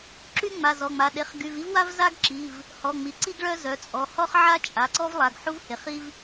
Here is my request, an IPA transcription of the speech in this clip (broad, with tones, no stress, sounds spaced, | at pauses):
ǁ y˥ ŋ͡m a˩˧˩ z ɔ˩˧˩ ŋ͡m a˩˧˩ ɗ e˩˧˩ χ ɡ y˩˧˩ v i˥ v w a˥ v z a˥ ɡ ǁ i˩˧˩ v | h ɔ˩˧˩ ŋ͡m i˩˧˩ ǀ i˥ ɡ ɭ œ˥ z œ˩˧˩ t͡sʼ ɔ˩˧˩ h ɔ˥ χ ʕ a˥ t͡ʃʼ a˩˧˩ ǀ ɔ˥ v lˠ a˩˧˩ ɡ ħ u˥ v h e˩˧˩ χ i˥ v